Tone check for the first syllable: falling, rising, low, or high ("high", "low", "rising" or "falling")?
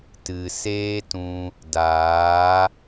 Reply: low